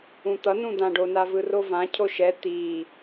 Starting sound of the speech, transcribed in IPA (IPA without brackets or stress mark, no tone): ũ